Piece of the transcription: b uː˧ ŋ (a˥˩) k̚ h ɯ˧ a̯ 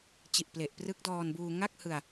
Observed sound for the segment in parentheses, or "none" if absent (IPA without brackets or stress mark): a˥˩